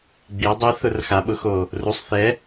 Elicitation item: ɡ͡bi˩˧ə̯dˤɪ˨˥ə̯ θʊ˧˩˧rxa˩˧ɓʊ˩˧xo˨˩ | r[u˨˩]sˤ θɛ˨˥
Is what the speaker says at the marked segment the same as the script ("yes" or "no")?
yes